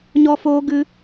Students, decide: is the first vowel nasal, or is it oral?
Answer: oral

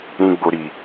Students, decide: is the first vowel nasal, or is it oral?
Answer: nasal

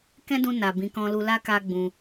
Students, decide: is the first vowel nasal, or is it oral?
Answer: nasal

